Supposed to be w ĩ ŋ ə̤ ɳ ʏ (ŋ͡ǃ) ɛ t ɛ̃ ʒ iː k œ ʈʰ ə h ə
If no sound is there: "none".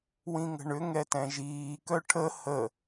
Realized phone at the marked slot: ŋ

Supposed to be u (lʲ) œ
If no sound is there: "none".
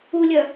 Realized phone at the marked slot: lʲ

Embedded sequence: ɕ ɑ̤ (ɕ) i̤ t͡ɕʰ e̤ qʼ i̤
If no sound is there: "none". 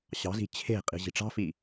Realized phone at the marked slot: z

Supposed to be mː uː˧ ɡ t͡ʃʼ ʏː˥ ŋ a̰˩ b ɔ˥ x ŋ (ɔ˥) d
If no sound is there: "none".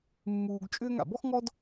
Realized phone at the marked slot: ɔ˥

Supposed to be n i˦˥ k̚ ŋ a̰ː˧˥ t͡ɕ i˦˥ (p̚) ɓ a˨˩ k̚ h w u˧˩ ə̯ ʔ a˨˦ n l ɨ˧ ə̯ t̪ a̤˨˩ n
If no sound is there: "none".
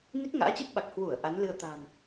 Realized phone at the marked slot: p̚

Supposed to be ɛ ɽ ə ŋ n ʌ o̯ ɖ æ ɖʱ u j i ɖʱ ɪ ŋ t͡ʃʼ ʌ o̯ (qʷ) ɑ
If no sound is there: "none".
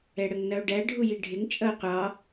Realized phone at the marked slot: qʷ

